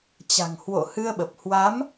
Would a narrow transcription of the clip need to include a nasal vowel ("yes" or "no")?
no